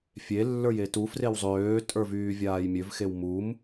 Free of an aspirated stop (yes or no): yes